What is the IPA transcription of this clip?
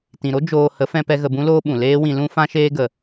t ĩ˨ ɾ o˦ d͡ʒ oː˧ h ə˨˦ f ɛ̃˧ p ɛ˧ ɣ ə˧ b ũ˦ l oː˦ ɓ ũ˨ l eː˦ w ĩ˧ l ũ˦ f ã˦ ʃ eː˦ ɡ ə˧

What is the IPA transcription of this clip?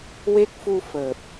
w e˦˥ k̚ f u˧ f əː˨˩ p̚

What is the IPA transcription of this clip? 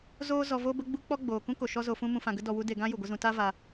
z oː˦ z ɔ˧ v o˦ b ə˦ ɡ͡b u˦ k͡p ɔ˦ ɡ͡b oː˨ k ũ˦ k o˨ ʃ ɔ˦ z o˧ f ũ˦ m ũ˧ f ã˧ ɡ ə˦ d ɔ˧ w u˦ d e˧ ɡ ã˦ j u˨ ɡʷ ə˦ z ũ˧ t a˦ v a˧

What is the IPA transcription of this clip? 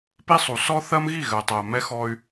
p i˦ sˤ u˨ s ɔ˦ θ ɜ˦ m ɣ i˦˨ ɣ ɜ˨ tˤ ɜ˨ m ɛ˦ x ɔ˦ y̯

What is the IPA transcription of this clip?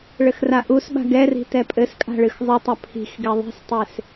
ɭ ɘ x r a ʔ u s ɓ a̤ ɡ ɛ r i̤ t ɛ pʼ ɘ s kʼ a̤ ɭ ɨ x zˤ ɨ tˤ ɐ pʰ i̤ x ɡ ɛ ðˤ i̤ s tˤ e s

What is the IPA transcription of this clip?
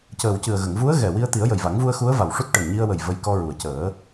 c əː˨˩ w c ɨ˨˩ ə̯ ɣ ə˨˩˨ ŋ v u˧˥ ə̯ ɣ ɛ˨˩ w i˧ ə̯ t̪ i˨˩˦ ə̯ j ə˨˩ j v a˨˩˦ ŋ v u˧ ə̯ x u˧˥ ə̯ v a˨˩ w ʂ u˦˥ t̚ ʈ ə˨˩ ŋ ɲ i˧ ə̯ w ə˨˩ j v ə˧ j k ɔ˧ ɹ u˨˩ ə̯ c əː˨˩˦

